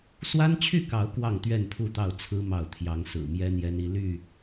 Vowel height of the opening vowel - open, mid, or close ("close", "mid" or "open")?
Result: open